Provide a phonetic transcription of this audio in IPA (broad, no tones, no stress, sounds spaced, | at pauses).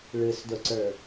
ɭ ɯ s d ʊ ǀ ə˞